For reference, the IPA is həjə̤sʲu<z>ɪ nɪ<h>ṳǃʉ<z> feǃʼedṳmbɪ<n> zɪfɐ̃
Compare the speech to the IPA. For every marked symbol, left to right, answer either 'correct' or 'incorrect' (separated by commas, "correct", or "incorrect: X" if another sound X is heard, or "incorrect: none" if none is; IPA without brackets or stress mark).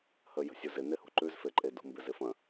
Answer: correct, correct, correct, incorrect: none